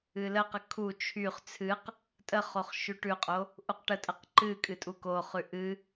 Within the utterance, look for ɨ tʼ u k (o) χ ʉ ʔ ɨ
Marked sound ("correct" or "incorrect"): correct